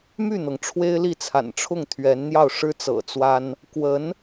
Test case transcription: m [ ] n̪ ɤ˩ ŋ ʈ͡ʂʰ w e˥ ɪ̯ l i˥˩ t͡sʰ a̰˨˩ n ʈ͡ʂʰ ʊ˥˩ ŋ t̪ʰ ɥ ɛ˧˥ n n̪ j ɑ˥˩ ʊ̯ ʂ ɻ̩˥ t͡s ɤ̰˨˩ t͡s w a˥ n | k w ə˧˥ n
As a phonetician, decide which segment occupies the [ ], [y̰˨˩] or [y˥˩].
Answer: y˥˩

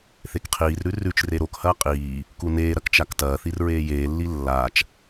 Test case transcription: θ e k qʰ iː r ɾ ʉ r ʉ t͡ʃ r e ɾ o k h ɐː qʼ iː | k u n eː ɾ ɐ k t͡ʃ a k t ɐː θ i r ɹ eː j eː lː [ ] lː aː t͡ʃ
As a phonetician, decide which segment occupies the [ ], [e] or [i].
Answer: i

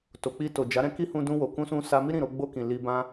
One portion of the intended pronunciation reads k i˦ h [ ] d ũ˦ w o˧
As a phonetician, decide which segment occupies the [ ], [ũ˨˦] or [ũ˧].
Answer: ũ˧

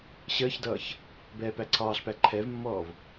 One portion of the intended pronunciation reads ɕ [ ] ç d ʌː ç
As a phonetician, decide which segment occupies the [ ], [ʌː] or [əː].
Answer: əː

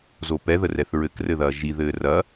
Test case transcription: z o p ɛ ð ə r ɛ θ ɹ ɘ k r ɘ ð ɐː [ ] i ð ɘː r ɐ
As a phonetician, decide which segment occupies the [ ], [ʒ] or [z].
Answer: ʒ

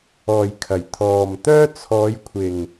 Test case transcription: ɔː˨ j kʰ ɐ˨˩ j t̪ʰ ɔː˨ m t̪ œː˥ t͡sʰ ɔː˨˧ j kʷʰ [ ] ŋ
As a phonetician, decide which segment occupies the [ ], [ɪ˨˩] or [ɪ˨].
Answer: ɪ˨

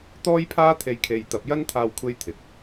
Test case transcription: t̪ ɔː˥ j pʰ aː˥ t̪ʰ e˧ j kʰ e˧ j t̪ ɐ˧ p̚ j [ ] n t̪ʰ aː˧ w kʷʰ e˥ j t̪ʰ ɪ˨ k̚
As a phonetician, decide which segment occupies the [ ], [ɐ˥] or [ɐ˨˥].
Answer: ɐ˥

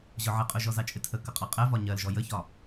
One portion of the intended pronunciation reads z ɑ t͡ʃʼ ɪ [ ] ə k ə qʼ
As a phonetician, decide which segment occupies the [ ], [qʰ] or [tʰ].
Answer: tʰ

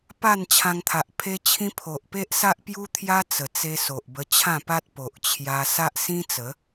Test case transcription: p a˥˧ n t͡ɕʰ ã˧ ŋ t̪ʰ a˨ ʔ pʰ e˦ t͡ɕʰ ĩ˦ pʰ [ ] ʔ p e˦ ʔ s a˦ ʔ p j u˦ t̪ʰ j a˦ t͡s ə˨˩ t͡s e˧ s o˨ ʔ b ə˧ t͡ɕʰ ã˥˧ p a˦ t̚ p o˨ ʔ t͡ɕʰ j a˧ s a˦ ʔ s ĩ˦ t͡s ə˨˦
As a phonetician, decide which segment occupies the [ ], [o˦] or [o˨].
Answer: o˨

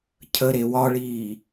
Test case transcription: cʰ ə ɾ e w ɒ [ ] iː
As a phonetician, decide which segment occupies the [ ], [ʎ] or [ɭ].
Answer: ɭ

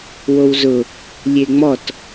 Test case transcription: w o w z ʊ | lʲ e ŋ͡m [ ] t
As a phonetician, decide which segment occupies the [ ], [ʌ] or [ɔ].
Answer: ɔ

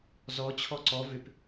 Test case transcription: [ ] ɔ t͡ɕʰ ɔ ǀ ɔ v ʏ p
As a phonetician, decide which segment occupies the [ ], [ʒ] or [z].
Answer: z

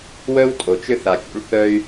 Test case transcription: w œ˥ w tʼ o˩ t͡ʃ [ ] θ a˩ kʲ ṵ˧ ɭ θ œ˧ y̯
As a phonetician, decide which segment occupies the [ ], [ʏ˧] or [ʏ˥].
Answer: ʏ˥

